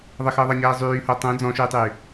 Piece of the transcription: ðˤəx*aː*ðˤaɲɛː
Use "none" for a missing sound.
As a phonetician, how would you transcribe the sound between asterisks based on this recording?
əː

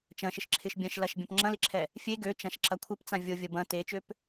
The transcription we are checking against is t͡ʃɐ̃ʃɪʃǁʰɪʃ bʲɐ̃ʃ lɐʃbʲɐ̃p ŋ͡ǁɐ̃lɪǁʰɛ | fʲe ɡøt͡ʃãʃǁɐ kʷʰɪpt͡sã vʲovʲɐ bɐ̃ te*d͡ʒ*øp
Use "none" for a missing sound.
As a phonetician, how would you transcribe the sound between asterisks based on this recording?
t͡ʃ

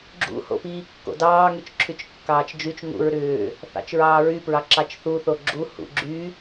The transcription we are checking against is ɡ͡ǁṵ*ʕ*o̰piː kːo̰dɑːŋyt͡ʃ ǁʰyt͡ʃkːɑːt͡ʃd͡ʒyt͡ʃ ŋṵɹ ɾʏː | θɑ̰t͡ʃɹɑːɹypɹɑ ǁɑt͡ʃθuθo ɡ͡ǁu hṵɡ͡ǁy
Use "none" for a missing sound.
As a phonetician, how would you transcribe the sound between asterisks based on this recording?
h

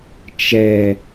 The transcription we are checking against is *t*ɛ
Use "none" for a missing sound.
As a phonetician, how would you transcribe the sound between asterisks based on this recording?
t͡ʃ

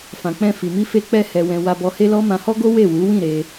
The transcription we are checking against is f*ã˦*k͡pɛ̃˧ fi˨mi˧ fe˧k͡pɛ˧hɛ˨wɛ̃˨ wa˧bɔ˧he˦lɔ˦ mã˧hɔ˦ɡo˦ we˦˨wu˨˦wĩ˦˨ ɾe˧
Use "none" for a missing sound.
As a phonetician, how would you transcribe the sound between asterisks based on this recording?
ã˨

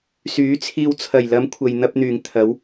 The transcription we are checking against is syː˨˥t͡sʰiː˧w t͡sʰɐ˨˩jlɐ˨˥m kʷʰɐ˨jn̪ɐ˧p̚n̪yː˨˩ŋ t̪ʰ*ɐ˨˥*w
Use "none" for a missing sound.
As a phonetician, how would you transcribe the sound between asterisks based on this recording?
ɐ˨˥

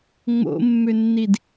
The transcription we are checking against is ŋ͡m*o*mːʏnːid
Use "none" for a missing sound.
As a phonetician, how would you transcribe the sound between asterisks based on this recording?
o̰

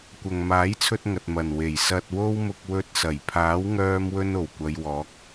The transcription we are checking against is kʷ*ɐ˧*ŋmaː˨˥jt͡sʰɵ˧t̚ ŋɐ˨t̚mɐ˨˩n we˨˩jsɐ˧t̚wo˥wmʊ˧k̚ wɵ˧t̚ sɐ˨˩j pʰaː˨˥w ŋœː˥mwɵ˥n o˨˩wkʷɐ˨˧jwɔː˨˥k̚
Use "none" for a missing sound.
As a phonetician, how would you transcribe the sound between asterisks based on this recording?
ɐ˨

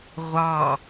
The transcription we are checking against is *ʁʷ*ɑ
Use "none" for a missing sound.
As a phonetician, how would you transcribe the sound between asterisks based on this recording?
ʁʷ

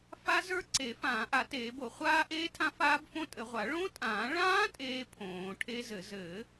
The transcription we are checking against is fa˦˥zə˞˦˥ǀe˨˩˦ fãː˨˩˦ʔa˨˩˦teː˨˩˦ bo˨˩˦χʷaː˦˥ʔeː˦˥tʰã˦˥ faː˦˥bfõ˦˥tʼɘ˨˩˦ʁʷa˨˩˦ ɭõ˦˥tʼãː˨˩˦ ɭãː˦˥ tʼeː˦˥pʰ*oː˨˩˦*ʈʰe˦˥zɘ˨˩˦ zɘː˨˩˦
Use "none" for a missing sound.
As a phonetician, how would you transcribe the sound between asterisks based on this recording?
õː˨˩˦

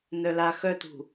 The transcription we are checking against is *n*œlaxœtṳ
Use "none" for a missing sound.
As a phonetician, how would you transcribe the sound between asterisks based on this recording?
n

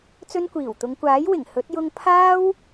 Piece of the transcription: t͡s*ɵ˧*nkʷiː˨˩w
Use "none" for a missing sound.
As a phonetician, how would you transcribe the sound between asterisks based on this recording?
ɵ˧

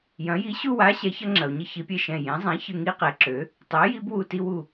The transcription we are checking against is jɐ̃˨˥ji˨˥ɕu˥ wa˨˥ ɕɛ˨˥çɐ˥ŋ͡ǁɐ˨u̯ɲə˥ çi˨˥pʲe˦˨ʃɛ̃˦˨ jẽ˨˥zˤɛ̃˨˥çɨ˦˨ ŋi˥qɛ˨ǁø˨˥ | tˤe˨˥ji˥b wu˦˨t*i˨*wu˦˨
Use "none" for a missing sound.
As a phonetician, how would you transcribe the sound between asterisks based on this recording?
i˥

